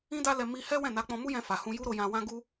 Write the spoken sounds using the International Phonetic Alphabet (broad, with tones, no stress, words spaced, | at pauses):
ĩ˦da˦lɛ˧ mi˧ hɛ˦wɛ̃˦˨na˨˦k͡pɔ̃˧ mu˦jɛ̃˧fa˨hũ˧ ju˦ɾo˧jã˧wã˦ ɡu˦